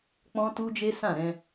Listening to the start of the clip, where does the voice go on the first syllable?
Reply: high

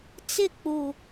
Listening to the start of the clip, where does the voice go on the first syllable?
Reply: falling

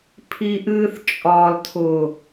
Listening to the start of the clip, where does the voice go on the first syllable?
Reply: low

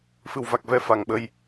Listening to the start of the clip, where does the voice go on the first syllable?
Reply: low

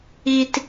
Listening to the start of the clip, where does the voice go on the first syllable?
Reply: low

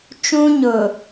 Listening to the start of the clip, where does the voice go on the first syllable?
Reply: high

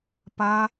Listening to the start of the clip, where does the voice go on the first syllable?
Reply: high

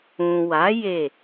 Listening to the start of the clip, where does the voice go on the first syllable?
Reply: low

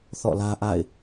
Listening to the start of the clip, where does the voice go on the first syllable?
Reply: falling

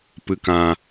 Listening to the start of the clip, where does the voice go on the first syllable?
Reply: low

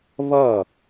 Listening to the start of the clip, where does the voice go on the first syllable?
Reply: falling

